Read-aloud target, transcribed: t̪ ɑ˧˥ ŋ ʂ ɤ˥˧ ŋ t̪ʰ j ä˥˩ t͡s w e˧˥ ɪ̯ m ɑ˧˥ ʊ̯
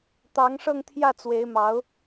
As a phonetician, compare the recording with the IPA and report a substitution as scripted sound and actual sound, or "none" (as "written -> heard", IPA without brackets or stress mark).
none